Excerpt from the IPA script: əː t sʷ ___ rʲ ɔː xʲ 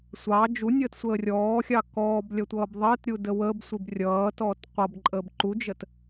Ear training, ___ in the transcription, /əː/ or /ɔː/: əː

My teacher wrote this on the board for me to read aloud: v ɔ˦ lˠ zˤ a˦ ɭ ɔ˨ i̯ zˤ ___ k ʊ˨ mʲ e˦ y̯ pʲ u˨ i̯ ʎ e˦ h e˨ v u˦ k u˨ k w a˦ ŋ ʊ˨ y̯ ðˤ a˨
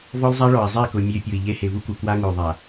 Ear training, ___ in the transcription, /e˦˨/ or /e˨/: e˦˨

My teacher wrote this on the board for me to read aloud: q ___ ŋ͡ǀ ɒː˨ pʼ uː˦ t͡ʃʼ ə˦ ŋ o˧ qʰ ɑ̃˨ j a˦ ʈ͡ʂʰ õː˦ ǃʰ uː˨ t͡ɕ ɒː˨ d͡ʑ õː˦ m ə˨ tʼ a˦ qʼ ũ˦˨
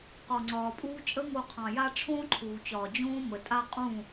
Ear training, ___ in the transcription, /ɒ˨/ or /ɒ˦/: ɒ˨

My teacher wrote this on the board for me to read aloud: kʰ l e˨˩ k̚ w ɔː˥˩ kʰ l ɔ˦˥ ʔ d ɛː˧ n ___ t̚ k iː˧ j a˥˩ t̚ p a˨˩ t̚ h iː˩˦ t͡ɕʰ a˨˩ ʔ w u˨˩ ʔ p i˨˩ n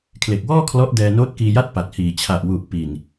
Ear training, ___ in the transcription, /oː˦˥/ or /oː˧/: oː˦˥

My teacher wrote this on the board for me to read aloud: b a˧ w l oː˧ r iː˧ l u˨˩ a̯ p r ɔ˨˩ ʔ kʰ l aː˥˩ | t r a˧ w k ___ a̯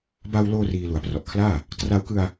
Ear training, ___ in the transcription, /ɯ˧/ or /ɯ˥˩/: ɯ˧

